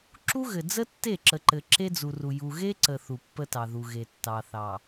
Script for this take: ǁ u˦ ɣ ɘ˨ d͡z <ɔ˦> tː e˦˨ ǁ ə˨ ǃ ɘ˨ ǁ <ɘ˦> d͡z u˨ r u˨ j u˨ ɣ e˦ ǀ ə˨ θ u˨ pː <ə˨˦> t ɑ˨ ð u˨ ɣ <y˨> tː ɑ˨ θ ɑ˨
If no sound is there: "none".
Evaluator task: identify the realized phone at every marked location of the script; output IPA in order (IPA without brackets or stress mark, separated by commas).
ə˦, e˦, ə˦, e˨